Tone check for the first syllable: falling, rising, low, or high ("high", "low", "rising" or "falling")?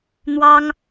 high